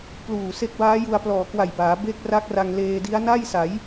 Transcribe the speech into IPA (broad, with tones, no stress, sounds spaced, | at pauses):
p l uː˨˩ s e˦˥ k̚ b aː˦˥ j u˧ a̯ p l ɔː˨˩ k w a˨˩ j b aː˩˦ b e˦˥ k̚ r a˦˥ k̚ r a˧ ŋ l eː˧ d i˦˥ a̯ n a˥˩ j s a˩˦ j